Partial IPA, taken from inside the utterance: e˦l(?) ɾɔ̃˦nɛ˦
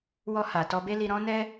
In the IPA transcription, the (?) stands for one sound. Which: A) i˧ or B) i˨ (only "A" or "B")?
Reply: A